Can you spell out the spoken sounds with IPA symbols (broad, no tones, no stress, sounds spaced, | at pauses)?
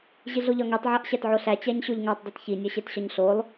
ʑ i ɮ o ʎ ɒ ŋ i tˤ ʕ æ ʔ ɕ æ t ʕ o ɬ æ t͡ɕ æ ɲ ɕ o ʎ ŋ æ tˤ dˤ i t ç i nʲ ɒ ɕ e t ɕ ɒ ɲ ɬ o lˠ